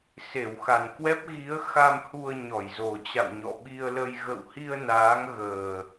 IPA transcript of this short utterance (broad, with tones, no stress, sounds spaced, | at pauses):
s e˧˩ w x a˨˩ n k w ɛ˦˥ p̚ ɣ i˨˦ ə̯ x a˧ m h u˧ ə̯ ɲ ɔ˧˩ j z o˨˩ t͡ɕ a̰˧˨ w ɲ ɔ̰˧˨ ɓ i˧ ə̯ l ə˧ j ɣ ə̰˧˨ w h i˧ ə̯ n aː˨˦ ŋ ɣ əː˨˩